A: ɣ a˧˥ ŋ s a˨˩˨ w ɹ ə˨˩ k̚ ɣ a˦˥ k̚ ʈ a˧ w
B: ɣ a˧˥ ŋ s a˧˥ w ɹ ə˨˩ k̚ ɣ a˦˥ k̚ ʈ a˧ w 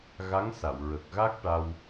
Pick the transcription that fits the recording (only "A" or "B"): A